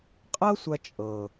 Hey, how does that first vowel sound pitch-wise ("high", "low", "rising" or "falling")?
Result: high